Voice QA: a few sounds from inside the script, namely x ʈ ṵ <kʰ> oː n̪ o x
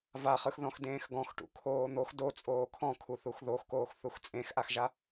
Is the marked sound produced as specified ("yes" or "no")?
yes